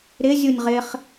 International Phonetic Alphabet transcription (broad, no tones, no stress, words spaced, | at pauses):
ɾɪ zʲunʲʁɪχ